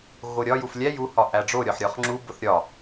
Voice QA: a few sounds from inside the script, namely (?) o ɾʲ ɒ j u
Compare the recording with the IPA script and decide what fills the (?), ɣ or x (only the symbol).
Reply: ɣ